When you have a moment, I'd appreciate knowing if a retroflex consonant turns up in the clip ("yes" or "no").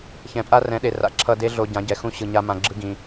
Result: no